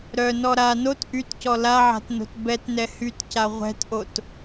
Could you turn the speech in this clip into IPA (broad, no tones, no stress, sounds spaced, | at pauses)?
ɾ œ n ɔ ɾ a n o t ʔ y t c ɔ l a ʕ a̤ t n o̤ t b ɛ t n ɛ h y t c a ʁʷ ɛ̤ t ʔ o t